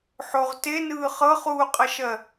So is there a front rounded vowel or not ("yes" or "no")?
no